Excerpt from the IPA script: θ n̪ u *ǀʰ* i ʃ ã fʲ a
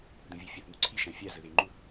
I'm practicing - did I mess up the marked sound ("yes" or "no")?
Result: no